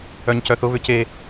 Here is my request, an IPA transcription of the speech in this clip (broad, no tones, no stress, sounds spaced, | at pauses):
œ ɲ c œ θ ʊ β ʏ c e